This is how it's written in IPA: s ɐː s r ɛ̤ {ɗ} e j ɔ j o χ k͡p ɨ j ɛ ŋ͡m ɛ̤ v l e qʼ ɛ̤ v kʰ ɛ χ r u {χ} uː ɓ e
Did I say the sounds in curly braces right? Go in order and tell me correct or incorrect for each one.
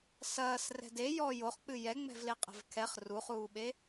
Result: incorrect, correct

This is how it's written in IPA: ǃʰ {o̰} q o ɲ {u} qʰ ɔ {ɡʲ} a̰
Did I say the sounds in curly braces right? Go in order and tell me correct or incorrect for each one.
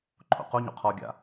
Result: correct, incorrect, correct

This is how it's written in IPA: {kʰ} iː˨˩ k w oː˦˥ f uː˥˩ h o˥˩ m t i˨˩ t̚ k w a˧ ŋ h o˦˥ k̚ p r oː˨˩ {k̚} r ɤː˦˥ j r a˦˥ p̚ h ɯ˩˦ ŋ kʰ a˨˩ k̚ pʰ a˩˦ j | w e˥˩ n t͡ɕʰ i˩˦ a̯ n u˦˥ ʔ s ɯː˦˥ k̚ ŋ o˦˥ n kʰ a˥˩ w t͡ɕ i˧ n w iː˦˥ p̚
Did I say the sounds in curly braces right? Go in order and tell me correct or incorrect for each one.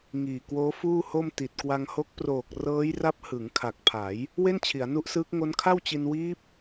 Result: incorrect, correct

